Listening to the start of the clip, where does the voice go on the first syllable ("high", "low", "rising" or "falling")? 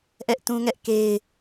high